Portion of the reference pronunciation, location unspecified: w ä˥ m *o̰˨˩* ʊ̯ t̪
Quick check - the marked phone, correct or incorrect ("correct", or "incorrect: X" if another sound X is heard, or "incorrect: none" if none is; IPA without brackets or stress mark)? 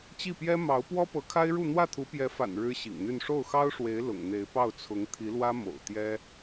correct